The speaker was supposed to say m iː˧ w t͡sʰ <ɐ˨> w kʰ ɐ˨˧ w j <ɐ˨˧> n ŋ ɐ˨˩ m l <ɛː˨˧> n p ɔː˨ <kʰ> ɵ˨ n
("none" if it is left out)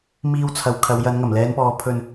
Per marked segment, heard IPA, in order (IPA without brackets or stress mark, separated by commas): ɐ˨˧, ɐ˨˧, ɛː˨˧, pʰ